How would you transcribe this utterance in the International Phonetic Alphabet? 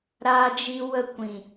ɾaː˧d͡ʒi˧ wə˦˨kʷĩ˨

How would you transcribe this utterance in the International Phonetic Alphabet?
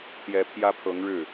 t̪jɛ˧˥pʰjä˥pʰɤ˧˥ŋɻɻ̩˥˩

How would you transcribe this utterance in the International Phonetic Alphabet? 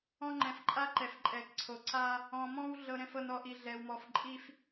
ɔ̃˦ŋ͡ǃɛ̃˨fǃʼa˦ǃɛ˨f ǃʼɛ˨kǀʰo˨ ǀa˦ | ɔ̃˨mɔ̃˦w ɮɤ˨ɾɛ̃˨fɤ˨n ɔ˨ʔi˨ɮɛ˨wmɔ˨f ǃʼi˦f

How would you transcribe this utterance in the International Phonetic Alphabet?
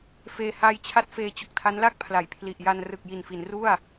feː˧haː˧jt͡ɕʰa˦˥t̚ feː˧t͡ɕo˨˩k̚tʰa˦˥nla˥˩k̚ pʰla˩˦jpʰli˨˩ʔja˧n rɯ˨˩k̚ji˨˩nfi˩˦n ru˥˩a̯

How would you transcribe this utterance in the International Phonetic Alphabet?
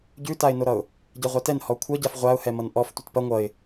ɟʉtaɪ̯noɾʌʊ̯ | ɟɛʁʷatɛn hɔkʷʰʌɟaf ʁʷaʊ̯hɛmʌn ʔɔf tʷɐtpɐ ŋʷʌɪ̯

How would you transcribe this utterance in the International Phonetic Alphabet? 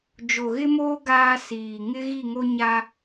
d͡ʒo˨ɣɪ˦moː˦ ɡaː˦ siː˨ ŋɪ˦ ɣi˦˨ŋo˦ɲa˦

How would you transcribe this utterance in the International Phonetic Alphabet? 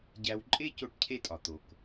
ɟæ˧w ǃʼe˥ co˥ʈcʰe˥tʼɒ˩ t̪o˩k

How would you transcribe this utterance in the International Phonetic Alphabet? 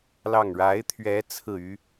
lɑ˥˩ŋ ɻa˧˥ɪ̯t̪ʰɥɛ˧˥ t͡sʰɹ̩˥˩y˥

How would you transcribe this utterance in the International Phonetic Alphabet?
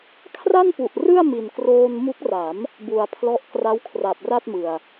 kʰra˥˩npu˨˩ʔ rɯ˥˩a̯mi˨˩nkroː˧nmu˦˥k̚ ra˩˦m | bu˨˩a̯pʰlɔ˦˥ʔ kra˦˥wkʰra˨˩p̚ra˥˩t̚mɯ˨˩a̯

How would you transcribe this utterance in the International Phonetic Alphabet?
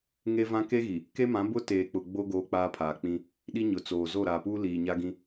ŋe˦vã˦ ke˦ɣi˨ | ke˦mã˨˦ bʊ˦ teː˨k͡pʊ˨ ɡ͡bo˦ ɡoː˦k͡paː˦pʰaː˨k͡pĩ˦ | ɗi˦ɲʊ˨t͡soː˨ zo˦˨ɾaː˨puː˦ liː˨ɲa˦ɡĩ˦

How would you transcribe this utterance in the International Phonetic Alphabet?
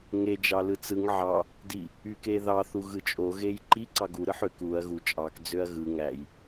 ŋe d͡ʒɑlɯt͡sɯŋ ʕɑ | di | ykeðɑ θuɣɯt͡ʃʼo ɣejǃi ǀɑɡu ɾɯħøk uɐ̯ ɣu t͡ʃʼɑk d͡zøɐ̯ɣɯ ŋæj

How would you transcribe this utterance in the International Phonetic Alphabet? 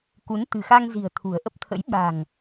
ku˨˦n t̪ɨ̤˨˩xa˧ŋzi̤˨˩ə̯ t̪ʰṳ˨˩ə̯ʔə˦˥p̚t̪ʰə̰˧˥j ɓa̤˨˩ŋ

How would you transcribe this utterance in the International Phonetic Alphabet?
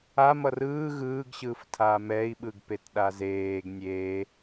amʌr ɯː ɣɯːɡɕɯːftʰaː mɛi̯ɓɯɡpetɗa zeːɡ nʲeː

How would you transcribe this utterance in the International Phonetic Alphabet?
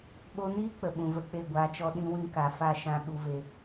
ɓo˧niː˦ k͡pə˨ɓũ˨ və˧k͡pe˦˨ɡʷaː˧t͡ʃɔ˦ ɗĩ˧wĩ˧ka˨fa˦˨ ʃã˦ɓu˦ve˦

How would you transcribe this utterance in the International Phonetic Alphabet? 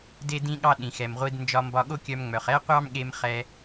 de˥dĩ˥ɠɑ˥ɗĩ˩ xɛ˩mʁʷi˧d nd͡ʒɒ˧mbɒ˧ɠo˥kʲœ˧m ŋ͡mœ˩χɛ˥qʷɑ˥mɠe˧m χɛ˧

